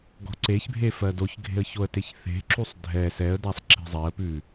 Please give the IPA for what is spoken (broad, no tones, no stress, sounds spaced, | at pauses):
ɡ ɔ̤ ǀ e ç bʱ e f ɜ d o ç ɡʱ e̤ ə̯ ç o ə̯ t e ç θ e̤ ǁ u sˤ dʱ ɛ s ɛ ə̯ d a sˤ ǁ e̤ zˤ ɛ ə̯ p ʉ